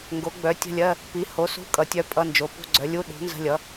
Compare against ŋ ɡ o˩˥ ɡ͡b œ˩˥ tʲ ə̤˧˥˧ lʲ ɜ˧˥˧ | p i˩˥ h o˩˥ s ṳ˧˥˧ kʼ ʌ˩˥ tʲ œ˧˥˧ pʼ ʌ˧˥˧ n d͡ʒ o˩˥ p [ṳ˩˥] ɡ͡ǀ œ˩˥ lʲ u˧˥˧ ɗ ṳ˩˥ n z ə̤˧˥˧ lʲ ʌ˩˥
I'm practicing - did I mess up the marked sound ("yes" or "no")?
yes